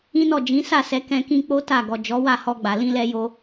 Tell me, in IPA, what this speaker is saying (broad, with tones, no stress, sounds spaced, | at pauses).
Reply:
ĩ˦ n ɔ˦˨ d͡ʒ ĩ˨˦ s a˦˨ s ɛ˨˦ k ɛ̃˧ k ĩ˧ k͡p o˦ t a˦˨ ɡ ɔ˨ d͡ʒ ɔ˨˦ w a˦˨ h ɔ˧ ɡ͡b a˨ l ĩ˧ l ɛ˧ j o˧